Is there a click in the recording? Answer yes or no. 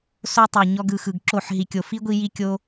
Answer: yes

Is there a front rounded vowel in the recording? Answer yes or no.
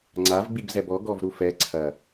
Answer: no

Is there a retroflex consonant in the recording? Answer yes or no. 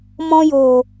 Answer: no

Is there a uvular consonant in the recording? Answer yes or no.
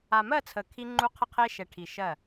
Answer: yes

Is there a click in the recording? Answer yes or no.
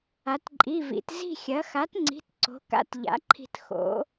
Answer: yes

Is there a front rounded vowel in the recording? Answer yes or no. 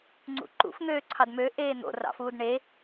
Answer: yes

